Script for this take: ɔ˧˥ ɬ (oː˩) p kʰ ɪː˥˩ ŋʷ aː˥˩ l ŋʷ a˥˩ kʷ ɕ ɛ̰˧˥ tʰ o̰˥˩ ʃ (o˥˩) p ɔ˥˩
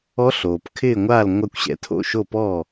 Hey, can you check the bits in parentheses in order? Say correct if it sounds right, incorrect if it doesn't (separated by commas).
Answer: correct, correct